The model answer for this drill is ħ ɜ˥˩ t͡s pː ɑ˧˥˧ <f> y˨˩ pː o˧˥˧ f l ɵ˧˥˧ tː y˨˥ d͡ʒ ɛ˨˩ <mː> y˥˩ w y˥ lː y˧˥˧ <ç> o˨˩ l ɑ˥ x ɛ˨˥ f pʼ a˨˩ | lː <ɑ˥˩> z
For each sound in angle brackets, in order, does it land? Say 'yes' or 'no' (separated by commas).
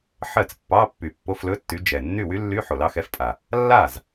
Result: no, no, no, no